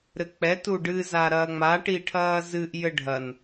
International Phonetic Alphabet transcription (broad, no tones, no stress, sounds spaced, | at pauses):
ɾ ɘ k͡p ɛ t u ɖ ɨ z a ɾ ɐː ŋ͡m a ʈ i ʈʰ ɐː z ɨ ʔ j ɘ ɖʱ ɐ n